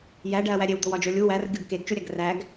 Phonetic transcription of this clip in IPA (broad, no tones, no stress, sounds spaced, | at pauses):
j æ ɖ æ ɐ̯ w æ ɾʲ e w d̪ o w ɒ d͡ʒ o lʲ u w æ r ɡʲ o ɡ k e ɡ t͡ʃ u ɾʲ æ ɡ r æ ɡ